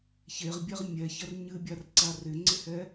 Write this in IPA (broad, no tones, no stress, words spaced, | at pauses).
çeʁbʲɛʁ mʲɛçɐr ɲɨbʲarǀa rɪŋ͡ǀɪhɛ